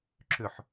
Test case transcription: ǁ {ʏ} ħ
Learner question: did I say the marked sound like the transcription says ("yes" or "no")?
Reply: yes